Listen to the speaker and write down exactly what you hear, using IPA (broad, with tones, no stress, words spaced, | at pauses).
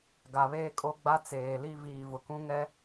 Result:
ɡa˨βeː˦kʼo˦ ɡ͡ba˦ t͡seː˨li˦ viː˨vʊ˨ kũ˦ŋɛ˦